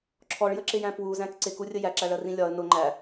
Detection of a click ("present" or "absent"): present